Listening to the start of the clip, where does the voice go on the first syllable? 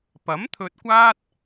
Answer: rising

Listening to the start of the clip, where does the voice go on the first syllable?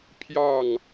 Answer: falling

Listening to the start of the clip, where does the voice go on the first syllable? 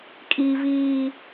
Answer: high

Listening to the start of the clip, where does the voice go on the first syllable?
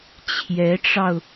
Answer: rising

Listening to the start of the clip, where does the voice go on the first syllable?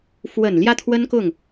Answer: low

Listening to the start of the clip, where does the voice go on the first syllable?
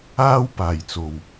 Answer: high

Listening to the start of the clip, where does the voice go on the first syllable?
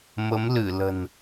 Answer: rising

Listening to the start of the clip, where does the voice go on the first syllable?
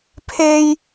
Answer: high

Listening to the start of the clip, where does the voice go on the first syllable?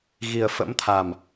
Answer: low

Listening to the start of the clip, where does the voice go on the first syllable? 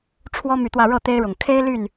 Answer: high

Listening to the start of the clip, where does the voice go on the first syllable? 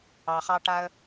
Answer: low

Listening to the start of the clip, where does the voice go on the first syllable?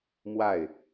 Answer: falling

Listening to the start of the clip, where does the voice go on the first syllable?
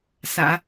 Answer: low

